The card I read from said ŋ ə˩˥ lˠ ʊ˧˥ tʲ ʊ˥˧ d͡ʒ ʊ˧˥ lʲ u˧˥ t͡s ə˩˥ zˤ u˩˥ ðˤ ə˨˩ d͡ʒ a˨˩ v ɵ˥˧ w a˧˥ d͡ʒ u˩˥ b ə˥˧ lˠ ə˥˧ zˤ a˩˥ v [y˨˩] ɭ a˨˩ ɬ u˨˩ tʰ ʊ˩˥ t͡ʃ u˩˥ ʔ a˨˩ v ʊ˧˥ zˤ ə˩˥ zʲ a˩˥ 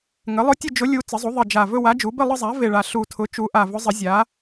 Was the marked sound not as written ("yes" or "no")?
yes